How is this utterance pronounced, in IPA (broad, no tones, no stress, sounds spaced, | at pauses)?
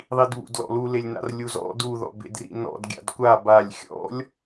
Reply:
ðˤ i d β ṵ d l ɔ̰ l u l e lʲ n a̰ r lʲ u z ɔ̰ d u ð ɔ̰ b ḛ d r ḭ n ɔ̰ d ɡʲ a̰ d kʷ a b a lʲ xʲ ɔ̰ lʲ